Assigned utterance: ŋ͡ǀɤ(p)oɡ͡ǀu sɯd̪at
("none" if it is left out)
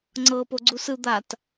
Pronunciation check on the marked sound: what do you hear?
p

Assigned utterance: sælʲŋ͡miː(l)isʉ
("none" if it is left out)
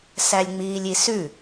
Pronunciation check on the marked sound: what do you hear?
lʲ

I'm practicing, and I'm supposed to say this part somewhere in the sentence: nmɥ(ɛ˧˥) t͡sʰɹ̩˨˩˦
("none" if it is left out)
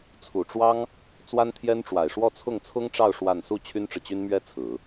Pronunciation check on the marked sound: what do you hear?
ɛ˥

